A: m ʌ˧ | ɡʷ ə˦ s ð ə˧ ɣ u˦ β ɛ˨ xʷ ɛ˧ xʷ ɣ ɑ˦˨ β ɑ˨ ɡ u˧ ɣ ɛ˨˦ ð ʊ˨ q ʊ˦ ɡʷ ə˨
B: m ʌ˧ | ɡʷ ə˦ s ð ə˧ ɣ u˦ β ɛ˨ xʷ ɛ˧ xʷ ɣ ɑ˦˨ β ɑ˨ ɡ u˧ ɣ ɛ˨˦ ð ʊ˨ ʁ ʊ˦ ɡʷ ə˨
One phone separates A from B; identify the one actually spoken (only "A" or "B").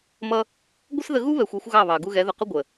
A